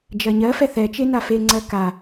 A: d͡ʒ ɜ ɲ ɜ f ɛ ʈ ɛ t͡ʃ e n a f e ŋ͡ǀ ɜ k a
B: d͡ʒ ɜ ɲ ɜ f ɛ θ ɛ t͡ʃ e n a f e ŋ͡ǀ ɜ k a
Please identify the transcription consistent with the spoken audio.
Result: B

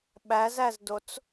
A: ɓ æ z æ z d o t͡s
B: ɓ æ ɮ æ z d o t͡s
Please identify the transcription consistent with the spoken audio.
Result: A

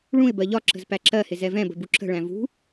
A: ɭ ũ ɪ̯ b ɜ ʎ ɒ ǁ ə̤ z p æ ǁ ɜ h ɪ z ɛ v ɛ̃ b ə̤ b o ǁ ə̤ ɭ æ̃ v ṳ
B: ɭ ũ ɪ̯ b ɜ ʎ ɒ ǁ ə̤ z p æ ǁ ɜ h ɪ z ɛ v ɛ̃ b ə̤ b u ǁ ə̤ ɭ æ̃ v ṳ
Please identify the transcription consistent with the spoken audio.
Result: B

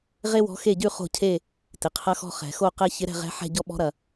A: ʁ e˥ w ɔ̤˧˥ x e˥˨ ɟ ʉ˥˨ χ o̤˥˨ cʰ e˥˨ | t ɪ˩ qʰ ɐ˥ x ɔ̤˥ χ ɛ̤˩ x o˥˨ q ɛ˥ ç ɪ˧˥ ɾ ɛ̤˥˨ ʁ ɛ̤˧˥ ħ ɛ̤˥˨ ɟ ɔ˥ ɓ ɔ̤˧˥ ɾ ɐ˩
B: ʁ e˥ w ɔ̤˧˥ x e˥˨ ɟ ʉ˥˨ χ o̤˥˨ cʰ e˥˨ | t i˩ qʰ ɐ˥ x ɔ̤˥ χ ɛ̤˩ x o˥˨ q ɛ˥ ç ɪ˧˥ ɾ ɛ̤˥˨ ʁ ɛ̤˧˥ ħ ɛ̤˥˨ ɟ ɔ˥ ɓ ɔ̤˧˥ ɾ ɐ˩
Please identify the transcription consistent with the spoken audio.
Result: A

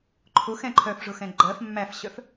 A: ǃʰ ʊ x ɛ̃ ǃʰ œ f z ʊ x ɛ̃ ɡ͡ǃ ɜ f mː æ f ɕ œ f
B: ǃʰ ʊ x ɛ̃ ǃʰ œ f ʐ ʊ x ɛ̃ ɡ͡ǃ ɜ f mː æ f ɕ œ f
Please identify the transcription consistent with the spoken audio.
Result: B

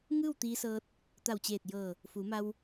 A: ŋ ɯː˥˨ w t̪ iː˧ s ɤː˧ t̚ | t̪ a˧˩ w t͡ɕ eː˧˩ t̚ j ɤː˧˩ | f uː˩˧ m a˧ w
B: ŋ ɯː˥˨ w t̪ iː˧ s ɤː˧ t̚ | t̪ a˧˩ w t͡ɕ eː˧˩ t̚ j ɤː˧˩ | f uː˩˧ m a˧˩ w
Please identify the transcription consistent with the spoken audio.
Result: A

